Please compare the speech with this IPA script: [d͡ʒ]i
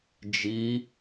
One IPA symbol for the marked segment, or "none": d͡ʒ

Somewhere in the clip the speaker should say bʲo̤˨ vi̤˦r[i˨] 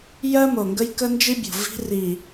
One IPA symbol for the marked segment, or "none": i˨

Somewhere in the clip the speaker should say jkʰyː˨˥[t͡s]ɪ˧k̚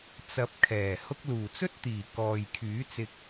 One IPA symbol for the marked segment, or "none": t͡s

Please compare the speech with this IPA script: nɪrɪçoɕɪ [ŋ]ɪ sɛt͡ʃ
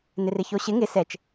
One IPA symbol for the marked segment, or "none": ŋ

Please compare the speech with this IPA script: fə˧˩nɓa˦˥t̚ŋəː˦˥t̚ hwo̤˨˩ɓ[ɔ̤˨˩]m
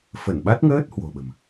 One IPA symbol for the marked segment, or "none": ə̤˨˩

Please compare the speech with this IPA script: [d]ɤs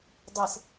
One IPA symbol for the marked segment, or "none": dˤ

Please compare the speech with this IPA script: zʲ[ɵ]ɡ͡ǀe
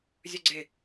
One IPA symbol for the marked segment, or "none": ɵ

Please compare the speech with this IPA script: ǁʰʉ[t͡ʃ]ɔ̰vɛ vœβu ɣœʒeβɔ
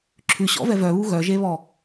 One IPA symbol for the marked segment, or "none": ɕ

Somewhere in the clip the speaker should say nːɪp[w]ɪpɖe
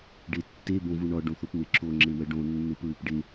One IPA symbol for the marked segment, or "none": ɹ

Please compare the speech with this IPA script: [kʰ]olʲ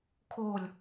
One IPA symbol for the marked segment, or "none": kʰ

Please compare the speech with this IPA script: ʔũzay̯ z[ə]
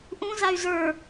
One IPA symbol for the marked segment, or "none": ə˞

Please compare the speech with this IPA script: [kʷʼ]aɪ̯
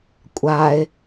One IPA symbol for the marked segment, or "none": kʷʼ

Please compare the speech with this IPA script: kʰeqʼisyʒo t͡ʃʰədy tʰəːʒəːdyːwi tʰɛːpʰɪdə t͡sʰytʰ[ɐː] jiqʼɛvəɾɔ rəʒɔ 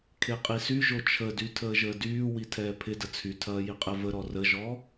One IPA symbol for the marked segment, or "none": ɐː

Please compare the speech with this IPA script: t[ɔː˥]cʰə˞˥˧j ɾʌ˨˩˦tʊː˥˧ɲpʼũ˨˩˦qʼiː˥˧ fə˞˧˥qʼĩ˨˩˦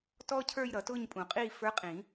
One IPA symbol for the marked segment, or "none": ɔː˥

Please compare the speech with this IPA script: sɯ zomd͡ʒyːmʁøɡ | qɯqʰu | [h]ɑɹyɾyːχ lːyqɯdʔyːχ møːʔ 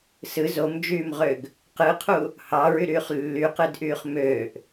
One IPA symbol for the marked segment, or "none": h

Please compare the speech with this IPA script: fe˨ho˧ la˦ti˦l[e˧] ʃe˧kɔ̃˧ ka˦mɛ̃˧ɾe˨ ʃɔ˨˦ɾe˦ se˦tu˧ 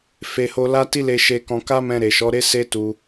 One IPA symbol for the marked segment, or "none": e˧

